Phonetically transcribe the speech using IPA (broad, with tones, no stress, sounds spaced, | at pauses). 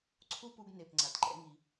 ǀʰ u˥ p u˧ ɡ n e˩ p ŋ͡ǀ a˩ t ǃ ɛ̰˧ ŋ i˩